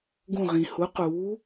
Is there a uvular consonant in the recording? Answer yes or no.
yes